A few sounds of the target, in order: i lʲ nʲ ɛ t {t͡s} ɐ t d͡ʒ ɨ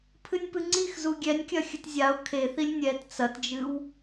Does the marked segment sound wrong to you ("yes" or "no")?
no